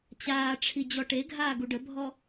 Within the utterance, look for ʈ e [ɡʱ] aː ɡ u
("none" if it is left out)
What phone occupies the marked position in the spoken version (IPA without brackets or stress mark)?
ɡʱ